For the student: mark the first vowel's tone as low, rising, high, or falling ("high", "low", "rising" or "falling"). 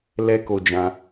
high